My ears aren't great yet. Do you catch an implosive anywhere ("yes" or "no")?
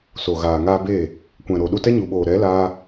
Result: yes